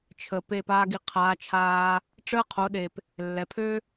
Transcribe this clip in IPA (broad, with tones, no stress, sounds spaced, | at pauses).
t͡ʃʰ ə˨ p e˦˨ p aː˦ ɡ i˧ qʰ aː˨˦ t͡ʃʰ aː˧ | ʈ͡ʂ əː˦ qʰ o˨˦ ɗ e˨ p | lː ɛ˨ pʰ ø˦